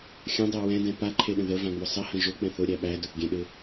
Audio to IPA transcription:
xʲ ə̃ dˤ ɛ w ɛ̃ d ɛ̃ p a ǃʰ e ɗ ə̃ ð ə v ã ŋ͡m ʊ sˤ ə h ə̃ ʒ ʊ k͡p ɛ̃ θ ʊ ɾʲ æ ɓ æ d ʊ θ ɡʲ ɛ̃ ɗ ɪ

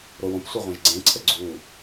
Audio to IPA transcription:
ɾ o w õ p sʷ e ʁʷ ɛ̃ ʒ ɡ͡ǀ ẽ ǀʰ ə ɡ͡ǀ u

